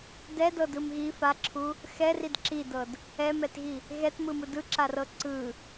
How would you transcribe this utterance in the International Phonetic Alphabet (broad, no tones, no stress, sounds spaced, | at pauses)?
d ɛ d ɤ d ɯ m ɣ i f a ǁʰ u | x ɛ r i d ǁ i d ɤ d | ɛ m ɛ t ɣ i | ɣ ɛ t m ɯ m ɯ d ɯ ǁ a r ɤ ǀ ɯ